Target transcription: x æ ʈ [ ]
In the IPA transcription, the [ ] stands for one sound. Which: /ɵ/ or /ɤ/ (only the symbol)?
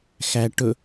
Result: ɵ